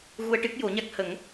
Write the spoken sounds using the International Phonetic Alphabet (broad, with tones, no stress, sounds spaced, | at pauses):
ɣ u˧ ə̯ ʈ ɨ˦˥ k̚ j o˨˩˦ ɲ a˦˥ k̚ h ə˨˩˦ ŋ